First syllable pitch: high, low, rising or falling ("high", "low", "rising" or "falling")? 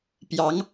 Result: rising